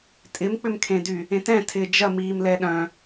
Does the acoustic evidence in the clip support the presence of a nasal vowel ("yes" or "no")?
yes